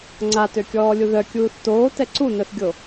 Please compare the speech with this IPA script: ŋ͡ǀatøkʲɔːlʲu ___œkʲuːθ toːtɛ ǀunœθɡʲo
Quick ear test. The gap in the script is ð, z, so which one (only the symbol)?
ð